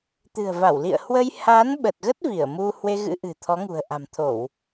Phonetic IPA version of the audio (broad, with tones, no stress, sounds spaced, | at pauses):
t̪ ɨ̤˨˩ ə̯ v a˧˩ w l ḭ˧˨ ə̯ h w ə˧ j h a˨˦ n ɓ ə˨˩ t̚ ɣ ə˦˥ t̚ v i˧˩ ə̯ m u˧ h w e˧ ɣ ɨ̰˧˥ ʔ ɨ̤˨˩ t̪ʰ ɔ˨˦ ŋ ṳ˨˩ ə̯ ʔ a̤˨˩ m t̪ʰ o˧˩˨ w